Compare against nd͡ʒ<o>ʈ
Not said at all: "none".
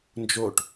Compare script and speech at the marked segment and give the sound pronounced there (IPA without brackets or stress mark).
o